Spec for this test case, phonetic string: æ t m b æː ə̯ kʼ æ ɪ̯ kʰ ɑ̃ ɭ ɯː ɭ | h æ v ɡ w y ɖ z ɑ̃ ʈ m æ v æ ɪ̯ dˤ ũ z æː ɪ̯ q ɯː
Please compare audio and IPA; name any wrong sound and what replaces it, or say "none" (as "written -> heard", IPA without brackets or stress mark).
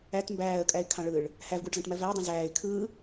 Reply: q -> kʰ